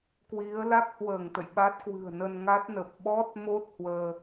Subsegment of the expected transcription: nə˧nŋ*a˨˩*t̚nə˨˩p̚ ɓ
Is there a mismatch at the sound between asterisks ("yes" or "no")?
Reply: yes